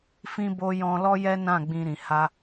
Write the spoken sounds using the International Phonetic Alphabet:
fĩ˧bo˧ jɔ̃˧lɔ˦jɛ˦nã˦˨ ɡ͡bĩ˧ɾĩ˨ ha˧

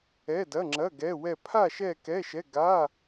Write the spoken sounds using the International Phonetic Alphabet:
ɛ˧˥˧dɐ˧˥˧ŋ͡ǁɐ˧˥˧ ɡɛ˧˥˧wɛ˥˧ pʰa˥˧ ʃɛ˥˧kɛ˧˥˧ʃɛ˧˥˧ ɡa˧˥˧

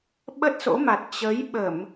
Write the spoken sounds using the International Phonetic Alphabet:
ɓə˦˥t̚so̰˧˥ma˨˩t̚ t͡ɕə˨˦jɓə˧˩˨m

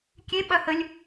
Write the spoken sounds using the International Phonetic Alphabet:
kʲe ɓɐhəlʲ

